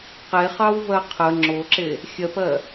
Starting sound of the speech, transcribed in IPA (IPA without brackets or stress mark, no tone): q